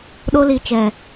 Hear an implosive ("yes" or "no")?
yes